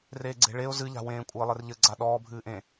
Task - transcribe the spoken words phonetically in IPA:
reːɡ͡ǀe̤ɭeʊ̯ zɨʎa̤wẽː kʷʼɘːlˠɘrʎɘɡ͡ǀa ɗɔːbʱɨːʔẽ

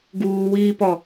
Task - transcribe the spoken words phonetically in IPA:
ɡuːwiːpɔ

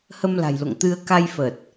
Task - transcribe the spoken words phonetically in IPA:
hə˧mla̤˨˩jlo̰˧˨ŋt̪ɨ˧ə̯ ka˧jfə˨˩t̚

